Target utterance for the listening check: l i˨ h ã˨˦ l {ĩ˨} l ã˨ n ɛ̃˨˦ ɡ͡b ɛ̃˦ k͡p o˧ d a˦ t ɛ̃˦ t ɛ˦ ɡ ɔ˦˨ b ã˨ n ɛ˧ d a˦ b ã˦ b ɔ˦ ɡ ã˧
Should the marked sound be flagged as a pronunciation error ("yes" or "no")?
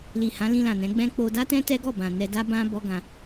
yes